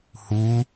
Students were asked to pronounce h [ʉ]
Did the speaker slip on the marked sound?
yes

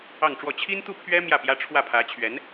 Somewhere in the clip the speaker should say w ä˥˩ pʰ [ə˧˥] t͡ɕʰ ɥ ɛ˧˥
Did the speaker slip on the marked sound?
yes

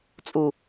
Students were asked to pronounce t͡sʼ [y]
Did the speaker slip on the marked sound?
yes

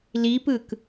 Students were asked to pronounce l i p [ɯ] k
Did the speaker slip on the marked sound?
no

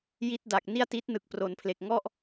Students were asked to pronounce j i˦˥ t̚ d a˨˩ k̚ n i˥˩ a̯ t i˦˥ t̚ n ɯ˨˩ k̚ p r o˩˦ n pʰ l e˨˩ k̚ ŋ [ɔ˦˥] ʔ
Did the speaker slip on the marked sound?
yes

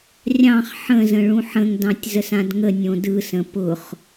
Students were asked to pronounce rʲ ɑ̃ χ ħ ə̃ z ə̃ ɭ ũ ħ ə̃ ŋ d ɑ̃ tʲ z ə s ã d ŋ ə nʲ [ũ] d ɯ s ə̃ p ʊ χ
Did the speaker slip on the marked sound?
yes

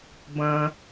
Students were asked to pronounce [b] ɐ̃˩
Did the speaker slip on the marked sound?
no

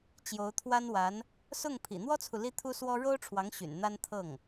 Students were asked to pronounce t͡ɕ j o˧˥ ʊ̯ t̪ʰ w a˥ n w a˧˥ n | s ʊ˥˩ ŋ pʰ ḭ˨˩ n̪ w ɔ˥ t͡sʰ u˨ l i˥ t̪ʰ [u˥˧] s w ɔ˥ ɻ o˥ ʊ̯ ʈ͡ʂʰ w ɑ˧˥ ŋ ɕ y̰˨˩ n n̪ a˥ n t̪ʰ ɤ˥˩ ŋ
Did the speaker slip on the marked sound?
yes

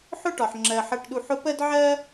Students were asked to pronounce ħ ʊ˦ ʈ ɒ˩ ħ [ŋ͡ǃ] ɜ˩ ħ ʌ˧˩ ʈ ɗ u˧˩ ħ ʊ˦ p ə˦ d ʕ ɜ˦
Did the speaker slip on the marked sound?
yes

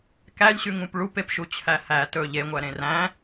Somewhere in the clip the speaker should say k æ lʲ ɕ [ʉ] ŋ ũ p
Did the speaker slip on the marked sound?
no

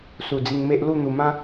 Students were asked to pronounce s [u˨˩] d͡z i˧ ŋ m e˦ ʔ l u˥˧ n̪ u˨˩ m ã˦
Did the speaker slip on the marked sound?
no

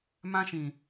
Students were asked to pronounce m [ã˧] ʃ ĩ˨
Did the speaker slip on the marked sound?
no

